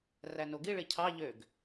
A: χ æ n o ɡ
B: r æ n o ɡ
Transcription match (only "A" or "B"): B